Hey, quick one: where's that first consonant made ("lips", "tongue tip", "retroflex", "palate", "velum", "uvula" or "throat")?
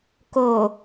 velum